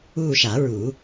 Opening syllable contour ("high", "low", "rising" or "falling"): falling